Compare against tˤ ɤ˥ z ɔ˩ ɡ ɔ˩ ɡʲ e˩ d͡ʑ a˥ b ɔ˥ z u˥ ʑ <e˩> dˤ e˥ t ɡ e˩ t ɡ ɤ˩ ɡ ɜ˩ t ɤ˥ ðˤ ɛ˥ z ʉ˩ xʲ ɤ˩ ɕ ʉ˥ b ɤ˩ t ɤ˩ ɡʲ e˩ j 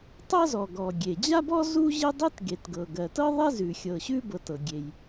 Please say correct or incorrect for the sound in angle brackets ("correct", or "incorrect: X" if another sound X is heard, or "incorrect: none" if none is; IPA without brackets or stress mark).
incorrect: e˥